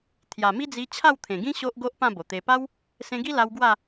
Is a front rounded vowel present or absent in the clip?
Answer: absent